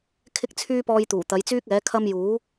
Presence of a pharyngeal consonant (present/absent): absent